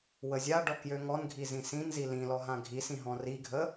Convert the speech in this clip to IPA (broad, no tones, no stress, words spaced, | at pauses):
wəzʲaɖɔ kjøŋɔnɡʱi zĩsĩnzi lĩlɔ ɦãɡʱisĩ ɦɔ̃riɡʱə